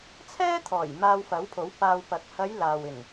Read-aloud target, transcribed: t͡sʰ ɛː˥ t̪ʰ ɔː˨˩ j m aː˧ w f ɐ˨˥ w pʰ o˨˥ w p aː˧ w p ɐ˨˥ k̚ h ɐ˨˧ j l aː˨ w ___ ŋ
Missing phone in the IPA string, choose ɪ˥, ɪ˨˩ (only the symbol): ɪ˨˩